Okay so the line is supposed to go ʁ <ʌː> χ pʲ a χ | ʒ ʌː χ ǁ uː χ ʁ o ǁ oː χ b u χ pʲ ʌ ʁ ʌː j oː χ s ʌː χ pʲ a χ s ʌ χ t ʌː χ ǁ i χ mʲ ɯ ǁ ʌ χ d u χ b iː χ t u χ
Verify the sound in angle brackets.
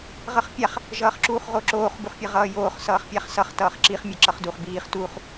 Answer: incorrect: ʌ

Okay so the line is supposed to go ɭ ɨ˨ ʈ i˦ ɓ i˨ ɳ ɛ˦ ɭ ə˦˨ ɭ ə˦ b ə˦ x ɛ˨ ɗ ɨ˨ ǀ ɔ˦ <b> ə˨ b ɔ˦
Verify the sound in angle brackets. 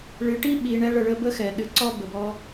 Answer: correct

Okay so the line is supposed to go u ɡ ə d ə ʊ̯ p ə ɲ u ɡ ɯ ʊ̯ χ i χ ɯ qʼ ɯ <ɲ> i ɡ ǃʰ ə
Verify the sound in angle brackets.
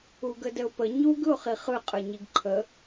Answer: correct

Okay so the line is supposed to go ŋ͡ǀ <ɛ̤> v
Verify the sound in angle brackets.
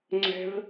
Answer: correct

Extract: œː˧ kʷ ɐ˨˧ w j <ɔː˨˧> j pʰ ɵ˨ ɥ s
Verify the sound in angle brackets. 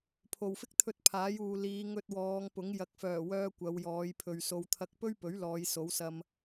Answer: correct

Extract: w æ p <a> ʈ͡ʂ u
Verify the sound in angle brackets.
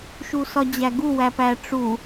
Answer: incorrect: æ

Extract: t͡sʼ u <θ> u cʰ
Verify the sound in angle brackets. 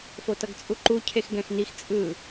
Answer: incorrect: ǃ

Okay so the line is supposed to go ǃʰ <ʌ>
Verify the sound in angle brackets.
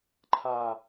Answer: incorrect: a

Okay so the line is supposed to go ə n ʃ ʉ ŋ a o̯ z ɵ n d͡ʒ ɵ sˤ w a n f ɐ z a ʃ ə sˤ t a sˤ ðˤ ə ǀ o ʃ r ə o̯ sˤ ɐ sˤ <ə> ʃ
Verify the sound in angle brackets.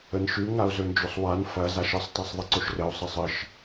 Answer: correct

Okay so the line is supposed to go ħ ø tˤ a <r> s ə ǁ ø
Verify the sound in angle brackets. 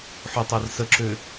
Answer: correct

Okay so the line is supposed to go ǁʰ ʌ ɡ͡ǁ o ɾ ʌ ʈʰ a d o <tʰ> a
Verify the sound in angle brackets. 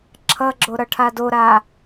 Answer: incorrect: ɾ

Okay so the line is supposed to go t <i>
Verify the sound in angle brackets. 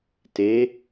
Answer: incorrect: e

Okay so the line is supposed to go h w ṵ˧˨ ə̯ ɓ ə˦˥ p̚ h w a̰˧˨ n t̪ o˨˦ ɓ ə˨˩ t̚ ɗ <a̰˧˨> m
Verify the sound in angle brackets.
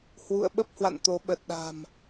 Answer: incorrect: a̤˨˩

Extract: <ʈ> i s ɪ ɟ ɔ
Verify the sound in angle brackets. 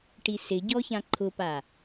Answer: correct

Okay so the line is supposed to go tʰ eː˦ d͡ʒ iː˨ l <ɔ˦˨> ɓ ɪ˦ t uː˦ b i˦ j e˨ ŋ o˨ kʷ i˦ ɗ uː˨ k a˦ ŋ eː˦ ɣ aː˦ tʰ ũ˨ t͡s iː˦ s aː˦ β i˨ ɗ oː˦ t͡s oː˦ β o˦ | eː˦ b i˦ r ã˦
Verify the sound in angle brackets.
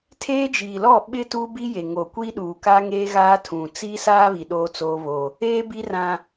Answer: correct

